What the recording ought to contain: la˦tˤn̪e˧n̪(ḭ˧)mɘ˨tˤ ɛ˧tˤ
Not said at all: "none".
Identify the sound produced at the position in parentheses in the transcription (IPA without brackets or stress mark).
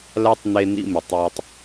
ḭ˧